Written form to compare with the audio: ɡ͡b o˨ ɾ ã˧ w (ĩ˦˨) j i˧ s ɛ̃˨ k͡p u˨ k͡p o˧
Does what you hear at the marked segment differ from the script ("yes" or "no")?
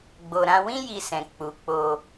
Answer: yes